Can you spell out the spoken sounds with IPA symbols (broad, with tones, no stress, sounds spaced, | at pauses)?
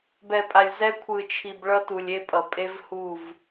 b ɛ˨ pʼ a˨ lʲ z ɛ˦ kʷʰ ɯ˨ t͡ʃʰ i˨ b ɭ ʌ˦ t u˨ lʲ e˦ pʼ ʌ˨ pʼ e˦ v h u˦˨ v